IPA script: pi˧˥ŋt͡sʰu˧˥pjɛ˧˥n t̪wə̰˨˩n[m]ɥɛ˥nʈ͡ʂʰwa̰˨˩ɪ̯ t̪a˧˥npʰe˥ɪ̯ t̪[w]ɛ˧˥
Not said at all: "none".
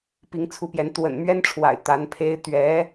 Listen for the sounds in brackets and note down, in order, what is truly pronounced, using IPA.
m, ɥ

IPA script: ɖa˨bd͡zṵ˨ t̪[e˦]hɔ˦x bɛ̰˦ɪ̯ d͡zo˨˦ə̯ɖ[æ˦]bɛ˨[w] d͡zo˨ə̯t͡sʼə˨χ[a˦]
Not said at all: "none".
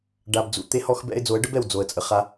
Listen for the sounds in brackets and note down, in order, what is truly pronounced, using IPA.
e˦, ə˦, w, a˦

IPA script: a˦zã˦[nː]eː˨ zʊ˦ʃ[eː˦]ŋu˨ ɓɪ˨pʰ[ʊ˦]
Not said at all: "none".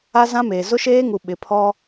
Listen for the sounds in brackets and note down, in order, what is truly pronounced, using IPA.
m, eː˦, ɔ˦

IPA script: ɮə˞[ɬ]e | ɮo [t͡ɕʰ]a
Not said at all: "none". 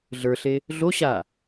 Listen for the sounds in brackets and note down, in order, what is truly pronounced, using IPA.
ɬ, ɕ

